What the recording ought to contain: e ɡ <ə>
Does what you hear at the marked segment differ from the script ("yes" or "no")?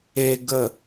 no